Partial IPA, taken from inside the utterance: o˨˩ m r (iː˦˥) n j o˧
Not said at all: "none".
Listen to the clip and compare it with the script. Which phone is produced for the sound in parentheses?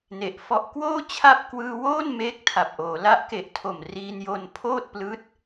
iː˧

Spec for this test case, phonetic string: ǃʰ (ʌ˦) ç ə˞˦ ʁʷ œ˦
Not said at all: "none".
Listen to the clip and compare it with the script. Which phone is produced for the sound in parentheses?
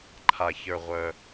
a˦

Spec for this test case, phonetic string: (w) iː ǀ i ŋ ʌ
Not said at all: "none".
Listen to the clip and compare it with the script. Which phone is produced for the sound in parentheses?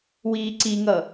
w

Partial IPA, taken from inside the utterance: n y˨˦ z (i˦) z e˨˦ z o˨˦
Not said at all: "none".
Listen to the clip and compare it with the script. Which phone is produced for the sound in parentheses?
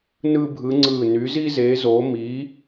i˦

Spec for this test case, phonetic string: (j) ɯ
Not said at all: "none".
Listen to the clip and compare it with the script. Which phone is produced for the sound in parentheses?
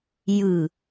j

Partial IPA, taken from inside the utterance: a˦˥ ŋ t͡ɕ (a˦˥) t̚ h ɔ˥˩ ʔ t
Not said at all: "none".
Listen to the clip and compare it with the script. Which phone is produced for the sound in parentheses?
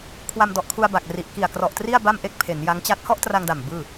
a˥˩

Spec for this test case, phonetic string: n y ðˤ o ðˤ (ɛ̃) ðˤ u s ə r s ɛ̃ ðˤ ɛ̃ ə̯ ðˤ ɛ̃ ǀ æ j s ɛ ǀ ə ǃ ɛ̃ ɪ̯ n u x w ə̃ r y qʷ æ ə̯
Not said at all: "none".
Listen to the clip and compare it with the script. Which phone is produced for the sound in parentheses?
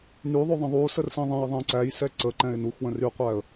ə̃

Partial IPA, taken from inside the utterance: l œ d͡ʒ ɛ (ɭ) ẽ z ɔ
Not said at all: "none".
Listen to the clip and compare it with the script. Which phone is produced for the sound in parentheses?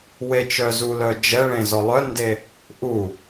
ɭ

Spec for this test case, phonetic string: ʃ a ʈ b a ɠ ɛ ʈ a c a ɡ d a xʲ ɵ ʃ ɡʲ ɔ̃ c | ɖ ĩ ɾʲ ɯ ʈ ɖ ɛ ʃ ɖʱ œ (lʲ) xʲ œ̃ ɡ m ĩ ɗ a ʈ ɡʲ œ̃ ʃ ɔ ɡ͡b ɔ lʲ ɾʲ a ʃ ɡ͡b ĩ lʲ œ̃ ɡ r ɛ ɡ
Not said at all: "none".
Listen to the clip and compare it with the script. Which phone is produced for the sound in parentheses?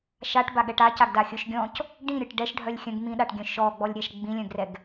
lʲ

